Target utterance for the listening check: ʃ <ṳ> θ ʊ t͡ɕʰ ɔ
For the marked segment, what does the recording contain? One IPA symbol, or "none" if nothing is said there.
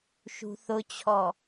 ṳ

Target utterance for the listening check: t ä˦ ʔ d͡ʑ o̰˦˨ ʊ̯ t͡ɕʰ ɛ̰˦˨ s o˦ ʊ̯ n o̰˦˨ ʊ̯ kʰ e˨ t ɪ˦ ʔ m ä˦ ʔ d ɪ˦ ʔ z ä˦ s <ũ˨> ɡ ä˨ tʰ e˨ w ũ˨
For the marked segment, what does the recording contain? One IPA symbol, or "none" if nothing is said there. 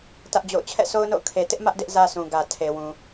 ũ˨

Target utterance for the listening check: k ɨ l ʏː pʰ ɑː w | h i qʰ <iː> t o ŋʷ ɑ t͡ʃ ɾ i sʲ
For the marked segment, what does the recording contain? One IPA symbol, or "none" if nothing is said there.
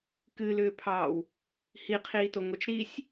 iː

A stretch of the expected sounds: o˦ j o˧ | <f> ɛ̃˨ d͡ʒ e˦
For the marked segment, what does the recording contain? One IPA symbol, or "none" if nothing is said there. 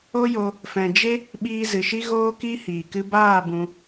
f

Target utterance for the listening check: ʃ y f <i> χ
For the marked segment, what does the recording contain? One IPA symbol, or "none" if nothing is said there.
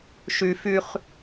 y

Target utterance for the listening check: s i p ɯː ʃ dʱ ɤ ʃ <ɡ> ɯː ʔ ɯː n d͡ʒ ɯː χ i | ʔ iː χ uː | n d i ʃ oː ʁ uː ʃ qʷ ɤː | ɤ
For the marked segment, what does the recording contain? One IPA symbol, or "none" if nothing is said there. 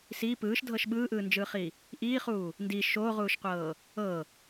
ɓ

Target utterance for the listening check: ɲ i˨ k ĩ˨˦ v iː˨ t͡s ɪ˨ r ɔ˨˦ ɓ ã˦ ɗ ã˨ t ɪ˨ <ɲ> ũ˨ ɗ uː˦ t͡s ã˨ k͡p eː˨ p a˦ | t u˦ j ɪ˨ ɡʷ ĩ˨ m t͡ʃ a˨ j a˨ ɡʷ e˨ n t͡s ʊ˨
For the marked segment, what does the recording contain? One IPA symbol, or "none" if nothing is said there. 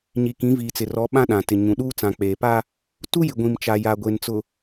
ɲ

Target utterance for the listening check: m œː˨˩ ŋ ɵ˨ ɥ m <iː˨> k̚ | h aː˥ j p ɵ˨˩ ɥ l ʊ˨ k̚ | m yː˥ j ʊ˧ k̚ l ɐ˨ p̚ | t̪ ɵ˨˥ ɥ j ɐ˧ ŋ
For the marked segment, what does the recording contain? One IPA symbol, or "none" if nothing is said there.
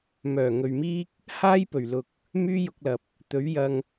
iː˥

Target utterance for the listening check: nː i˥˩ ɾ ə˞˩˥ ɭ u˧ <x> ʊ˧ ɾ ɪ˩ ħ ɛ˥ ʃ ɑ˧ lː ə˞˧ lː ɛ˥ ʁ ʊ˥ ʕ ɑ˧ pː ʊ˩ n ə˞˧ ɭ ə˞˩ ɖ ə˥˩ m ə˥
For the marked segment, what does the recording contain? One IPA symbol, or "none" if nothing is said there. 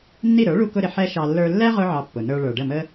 k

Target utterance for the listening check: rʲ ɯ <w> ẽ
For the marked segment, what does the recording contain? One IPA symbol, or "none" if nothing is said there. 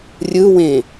w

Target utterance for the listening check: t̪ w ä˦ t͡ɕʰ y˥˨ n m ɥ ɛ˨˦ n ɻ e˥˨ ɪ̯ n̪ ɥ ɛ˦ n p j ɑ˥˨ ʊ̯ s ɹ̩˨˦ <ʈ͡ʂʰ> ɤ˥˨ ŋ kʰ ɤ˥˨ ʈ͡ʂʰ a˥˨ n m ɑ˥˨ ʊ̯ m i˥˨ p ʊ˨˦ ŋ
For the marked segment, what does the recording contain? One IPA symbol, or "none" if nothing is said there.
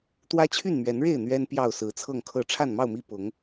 t͡sʰ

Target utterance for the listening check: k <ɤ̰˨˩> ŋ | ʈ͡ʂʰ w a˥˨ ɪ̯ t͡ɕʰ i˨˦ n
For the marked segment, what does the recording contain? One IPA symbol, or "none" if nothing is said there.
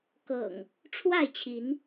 ɤ̰˨˩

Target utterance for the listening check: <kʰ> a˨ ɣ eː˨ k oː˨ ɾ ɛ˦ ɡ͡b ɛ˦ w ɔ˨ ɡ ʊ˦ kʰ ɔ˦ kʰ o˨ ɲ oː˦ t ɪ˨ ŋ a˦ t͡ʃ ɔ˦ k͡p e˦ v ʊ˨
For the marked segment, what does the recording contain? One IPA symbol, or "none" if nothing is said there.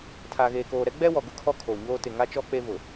tʰ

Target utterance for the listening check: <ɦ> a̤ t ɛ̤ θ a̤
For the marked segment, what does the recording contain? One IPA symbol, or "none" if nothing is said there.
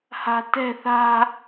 h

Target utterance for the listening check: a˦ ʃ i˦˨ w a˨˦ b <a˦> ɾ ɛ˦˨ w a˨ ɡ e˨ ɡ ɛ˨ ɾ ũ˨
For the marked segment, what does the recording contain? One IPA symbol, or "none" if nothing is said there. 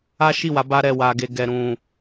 a˦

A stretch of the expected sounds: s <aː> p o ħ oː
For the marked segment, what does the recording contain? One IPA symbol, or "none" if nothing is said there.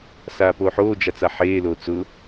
aː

